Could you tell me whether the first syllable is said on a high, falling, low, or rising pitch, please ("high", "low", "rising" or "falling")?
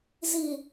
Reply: low